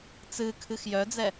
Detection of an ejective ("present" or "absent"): absent